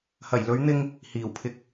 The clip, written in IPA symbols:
hɐ˨˩jlɵ˨˥ɥ n̪ɪ˥ŋ | hiː˨˩wpʰɪ˧k̚

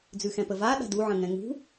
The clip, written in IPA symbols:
d͡zʉxɛ̃pəvaː ɗa̤du ʕə̃ŋɛ̃ŋṳ

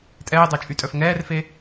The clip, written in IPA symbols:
tʼɛːdˤa t͡ʃʼytʼœfŋɛːrfe

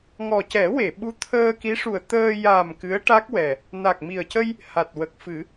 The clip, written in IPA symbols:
ŋɔ˨˩cɛ˨˩˦we˨˩˨ɓu˧˥ t̪ʰəː˧ki˧˥ʂu˨˩ə̯ t̪əː˧ ja˨˩m kɨ˧˥ə̯ʈa˦˥k̚wɛ˨˩ | na˨˩k̚mi˨˩ə̯ cə˧j | ha˨˩t̚wə˨˩k̚fɨ˨˩˦

